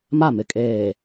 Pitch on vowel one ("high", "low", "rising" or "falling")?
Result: falling